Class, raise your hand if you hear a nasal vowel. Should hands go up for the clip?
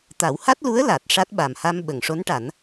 no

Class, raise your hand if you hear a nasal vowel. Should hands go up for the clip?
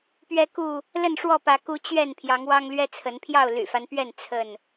no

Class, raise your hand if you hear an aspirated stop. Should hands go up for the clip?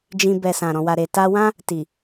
no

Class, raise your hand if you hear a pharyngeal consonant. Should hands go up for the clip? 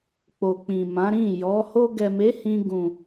no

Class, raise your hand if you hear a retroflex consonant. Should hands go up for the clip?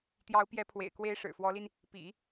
yes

